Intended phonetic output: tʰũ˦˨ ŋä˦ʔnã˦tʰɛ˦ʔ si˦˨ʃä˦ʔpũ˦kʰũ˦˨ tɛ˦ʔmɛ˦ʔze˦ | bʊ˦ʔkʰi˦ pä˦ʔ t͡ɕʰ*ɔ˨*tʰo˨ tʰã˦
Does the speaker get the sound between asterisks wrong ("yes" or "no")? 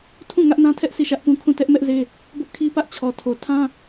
no